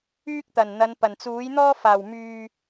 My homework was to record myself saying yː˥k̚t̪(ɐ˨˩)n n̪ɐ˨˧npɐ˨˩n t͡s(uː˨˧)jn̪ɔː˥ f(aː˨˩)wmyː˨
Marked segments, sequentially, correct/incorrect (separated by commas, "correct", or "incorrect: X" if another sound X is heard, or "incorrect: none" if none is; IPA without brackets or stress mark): correct, incorrect: uː˨˥, correct